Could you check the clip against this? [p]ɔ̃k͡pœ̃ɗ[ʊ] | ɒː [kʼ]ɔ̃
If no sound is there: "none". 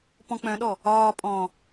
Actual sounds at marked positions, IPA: p, ɔ, pʼ

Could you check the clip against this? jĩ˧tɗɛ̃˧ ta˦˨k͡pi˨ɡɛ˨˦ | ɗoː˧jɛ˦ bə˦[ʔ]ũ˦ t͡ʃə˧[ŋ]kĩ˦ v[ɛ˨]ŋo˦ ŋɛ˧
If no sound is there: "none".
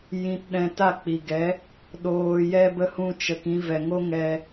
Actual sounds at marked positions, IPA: h, none, ɛ˨

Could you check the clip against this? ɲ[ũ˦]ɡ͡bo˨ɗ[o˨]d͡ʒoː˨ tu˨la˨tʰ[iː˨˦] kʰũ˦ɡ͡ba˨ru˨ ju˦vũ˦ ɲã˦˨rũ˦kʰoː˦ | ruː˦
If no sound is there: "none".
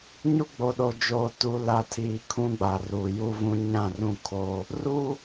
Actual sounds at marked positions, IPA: u˦, o˨, iː˨

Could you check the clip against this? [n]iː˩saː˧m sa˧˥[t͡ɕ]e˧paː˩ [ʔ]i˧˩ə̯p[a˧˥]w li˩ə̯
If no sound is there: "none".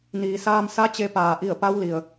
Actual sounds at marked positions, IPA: n, t͡ɕ, ʔ, a˧˥

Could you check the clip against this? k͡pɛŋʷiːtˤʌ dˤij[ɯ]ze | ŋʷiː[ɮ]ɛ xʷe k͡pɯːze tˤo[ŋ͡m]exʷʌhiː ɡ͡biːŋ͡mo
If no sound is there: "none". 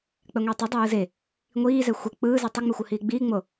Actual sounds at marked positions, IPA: ɯ, z, ŋ͡m

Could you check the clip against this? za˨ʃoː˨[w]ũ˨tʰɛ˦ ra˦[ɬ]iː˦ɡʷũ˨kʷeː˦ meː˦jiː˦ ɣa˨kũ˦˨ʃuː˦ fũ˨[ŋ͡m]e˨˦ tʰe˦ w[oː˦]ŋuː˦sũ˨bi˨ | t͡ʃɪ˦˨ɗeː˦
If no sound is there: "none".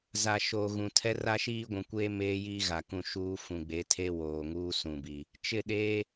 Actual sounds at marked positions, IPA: ɣ, ʃ, ɡ͡b, oː˨

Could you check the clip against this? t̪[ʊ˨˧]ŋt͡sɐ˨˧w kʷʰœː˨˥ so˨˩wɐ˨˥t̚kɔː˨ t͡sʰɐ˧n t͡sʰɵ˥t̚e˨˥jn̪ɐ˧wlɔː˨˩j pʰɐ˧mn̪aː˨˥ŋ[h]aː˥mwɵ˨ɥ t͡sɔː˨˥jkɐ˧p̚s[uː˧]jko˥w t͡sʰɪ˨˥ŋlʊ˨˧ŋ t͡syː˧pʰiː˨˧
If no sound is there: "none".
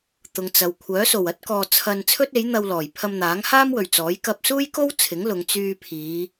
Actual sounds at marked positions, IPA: ʊ˨˧, h, uː˥

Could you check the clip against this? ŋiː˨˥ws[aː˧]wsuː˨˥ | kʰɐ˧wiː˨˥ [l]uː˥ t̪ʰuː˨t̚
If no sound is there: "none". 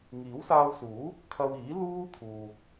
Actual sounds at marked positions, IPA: aː˧, l

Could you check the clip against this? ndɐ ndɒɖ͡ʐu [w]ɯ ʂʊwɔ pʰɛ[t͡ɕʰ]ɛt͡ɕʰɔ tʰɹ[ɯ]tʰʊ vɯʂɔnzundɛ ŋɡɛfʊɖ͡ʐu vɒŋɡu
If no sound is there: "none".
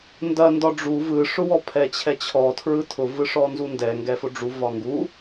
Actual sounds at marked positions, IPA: v, t͡ɕʰ, ɯ

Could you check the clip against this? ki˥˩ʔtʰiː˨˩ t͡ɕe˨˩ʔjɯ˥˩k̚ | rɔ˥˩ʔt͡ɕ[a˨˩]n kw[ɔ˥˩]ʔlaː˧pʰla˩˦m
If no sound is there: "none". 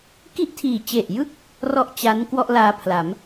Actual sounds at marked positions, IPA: a˦˥, ɔ˥˩

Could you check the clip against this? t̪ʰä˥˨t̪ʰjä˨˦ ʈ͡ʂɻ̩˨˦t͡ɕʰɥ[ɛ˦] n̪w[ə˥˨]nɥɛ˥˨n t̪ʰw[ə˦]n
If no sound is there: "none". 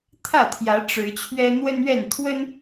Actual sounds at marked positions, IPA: ɛ˦, ə˦, ə˦

